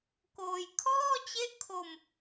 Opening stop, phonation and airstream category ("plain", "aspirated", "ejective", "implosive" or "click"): plain